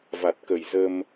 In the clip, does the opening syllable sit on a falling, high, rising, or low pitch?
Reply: low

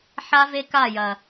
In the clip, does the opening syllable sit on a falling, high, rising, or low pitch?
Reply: high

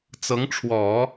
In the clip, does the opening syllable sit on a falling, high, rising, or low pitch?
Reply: rising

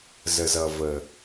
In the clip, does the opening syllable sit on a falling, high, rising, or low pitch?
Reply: low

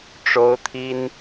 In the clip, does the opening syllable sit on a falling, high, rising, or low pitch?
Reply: high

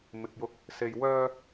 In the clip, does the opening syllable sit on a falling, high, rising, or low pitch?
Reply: low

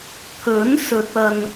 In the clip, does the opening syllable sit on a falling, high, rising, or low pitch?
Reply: rising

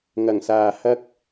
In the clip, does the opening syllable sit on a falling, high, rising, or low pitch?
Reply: low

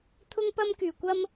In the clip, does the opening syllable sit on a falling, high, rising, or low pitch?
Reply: high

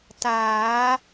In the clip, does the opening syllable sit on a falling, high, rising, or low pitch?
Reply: rising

